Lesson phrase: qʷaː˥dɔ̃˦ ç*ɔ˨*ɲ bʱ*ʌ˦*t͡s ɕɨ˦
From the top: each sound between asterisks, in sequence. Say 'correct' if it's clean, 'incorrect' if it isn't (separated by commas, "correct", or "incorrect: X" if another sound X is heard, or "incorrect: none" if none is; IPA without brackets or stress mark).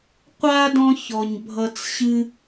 correct, incorrect: ʌ˨